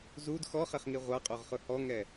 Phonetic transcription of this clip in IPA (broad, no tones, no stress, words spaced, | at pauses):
zud xɔχɛχŋi ʁʷaqʼoʁχʊ hɔŋɛ